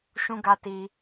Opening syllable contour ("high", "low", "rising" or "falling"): high